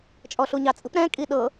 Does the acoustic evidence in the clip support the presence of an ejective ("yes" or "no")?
yes